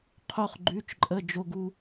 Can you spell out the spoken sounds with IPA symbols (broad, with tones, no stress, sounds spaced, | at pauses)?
qʰ o˧ χ ɡ͡ǃ ʉ˩˧˩ t͡ʃ ǃʼ ə˩˧˩ d͡ʒ o˧ ɡ u˧